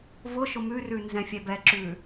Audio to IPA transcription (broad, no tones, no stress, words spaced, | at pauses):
vʊ ʃʊmʉrʉ nzɛ̃fʲɛbɛǁʉ